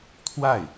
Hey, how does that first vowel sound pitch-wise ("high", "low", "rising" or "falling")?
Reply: falling